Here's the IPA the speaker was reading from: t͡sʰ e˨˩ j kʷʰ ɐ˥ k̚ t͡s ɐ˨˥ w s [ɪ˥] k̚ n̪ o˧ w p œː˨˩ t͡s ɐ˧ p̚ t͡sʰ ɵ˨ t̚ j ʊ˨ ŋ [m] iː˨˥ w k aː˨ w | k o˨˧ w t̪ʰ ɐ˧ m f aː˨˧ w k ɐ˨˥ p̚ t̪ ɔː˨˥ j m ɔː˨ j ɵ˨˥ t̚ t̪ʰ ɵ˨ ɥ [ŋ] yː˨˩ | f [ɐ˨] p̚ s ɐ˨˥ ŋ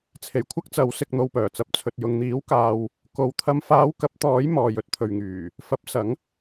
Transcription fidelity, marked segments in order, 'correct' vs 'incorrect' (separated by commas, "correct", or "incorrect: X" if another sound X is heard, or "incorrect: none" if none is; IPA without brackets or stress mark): incorrect: ɪ˧, incorrect: n̪, correct, incorrect: ɐ˨˥